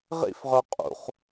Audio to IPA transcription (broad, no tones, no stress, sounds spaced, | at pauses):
ʁ ḭ f ʁ œ qʼ ṵ χ